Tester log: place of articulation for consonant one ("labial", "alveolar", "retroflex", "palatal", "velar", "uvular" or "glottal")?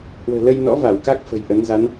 glottal